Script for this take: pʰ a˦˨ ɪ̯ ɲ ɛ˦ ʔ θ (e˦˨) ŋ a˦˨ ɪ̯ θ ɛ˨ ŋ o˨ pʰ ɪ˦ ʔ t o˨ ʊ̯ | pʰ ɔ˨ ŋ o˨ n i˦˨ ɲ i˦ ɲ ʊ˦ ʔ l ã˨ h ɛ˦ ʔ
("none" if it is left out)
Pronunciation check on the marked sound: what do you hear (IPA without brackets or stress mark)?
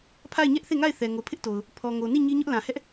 e˦˨